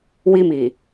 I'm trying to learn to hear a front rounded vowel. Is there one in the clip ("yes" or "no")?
no